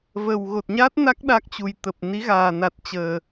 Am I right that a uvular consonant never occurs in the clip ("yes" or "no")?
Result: yes